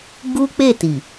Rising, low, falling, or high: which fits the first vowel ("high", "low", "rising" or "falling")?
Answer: high